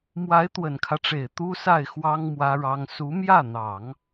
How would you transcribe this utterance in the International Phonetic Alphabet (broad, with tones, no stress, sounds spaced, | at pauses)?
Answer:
m w a˧˥ ɪ̯ t̪ w ə˨˩ n kʰ ä˦ ʈ͡ʂ e˨˩ ɪ̯ t̪ u˥ s a˥˩ ɪ̯ x w ɑ˥ ŋ m w ä˥ ɻ ɑ˥ ŋ s u˧˥ m j ä˥˩ n̪ ɑ˨˩˦ ŋ